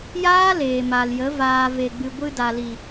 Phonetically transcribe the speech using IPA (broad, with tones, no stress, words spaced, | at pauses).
jaː˦ leː˨ma˨ljə˨˦ vaː˨ve˨ɡ͡bɨ˨ ɡʷɨ˧da˨ li˨